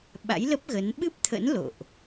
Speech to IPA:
ɓa̰˧˥jlə˦˥p̚ɣə˨˦n ɓɨ˦˥p̚t̪ʰə̰˧˥n lo̰˧˨ʔ

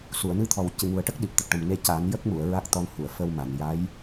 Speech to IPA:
su˨˩˨ə̯nɨ˧t̪ʰɔ˨˩w cɨ˨˩ŋu˨˩ə̯ʈə˦˥k̚ɗi˨˩p̚ t̪ə˨˩k̚ʈə˨˩m ne˧ ca˨˩˦njə˦˥k̚mu˨˩˨ə̯ ɹa˦˥k̚ t̪ɔ˧nhu˨˩˨ə̯fə˧wma˨˩˨n ja˧˥j

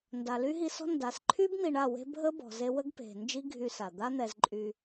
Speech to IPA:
nda˨ly˦ɦi˧sɔ̤˦ nda˨sǃʰy˦b n̪i˧ɳa˦˨we̤˦ bʱə˦bɔ̤˨ze˧wə˦ɡ pe̤˨ nd͡ʒi˦ɡʱy˧sa˨ d̪a˦n̪ɛ˧z ǃʼy˧

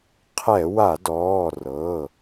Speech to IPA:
qʰɛ˧˩˧wa˧˩˧dɔː˩˧˩ rɤ˩˧˩

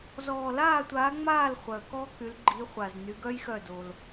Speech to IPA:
zɔː˨laː˦˨tʷaː˨˦ŋ͡maː˦˨l χʷœ˨kɔ˦˥ky˨˦l ɡ͡ǃi˨˦χʷa˨z ny˨˦ɡœ˦˥jxœ˦˨do˨l

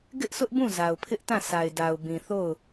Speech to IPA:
ɡɪ˦ʔsʊ˦ʔbũ˦˨ za˨ʊ̯pʰɪ˦ʔtã˦˨ sa˨ɪ̯da˨ʊ̯bĩ˨θo˦˨ʊ̯

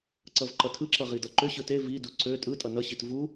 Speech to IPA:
ǀʌvǃʌtʰɯǁʌ ʁidʌǃʏɕɯ te vidu ǀø tʼɯtʼʌ nʌɕit vu

